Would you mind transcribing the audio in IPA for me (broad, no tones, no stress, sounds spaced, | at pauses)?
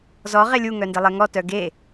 z ɔ ʁ e lʲ u ŋ œ n d e lˠ e ŋ ɔ t œ ɡ e